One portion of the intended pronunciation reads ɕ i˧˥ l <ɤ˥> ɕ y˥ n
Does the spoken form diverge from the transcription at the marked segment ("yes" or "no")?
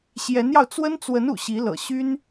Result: yes